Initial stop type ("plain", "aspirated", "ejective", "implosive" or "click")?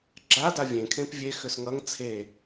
click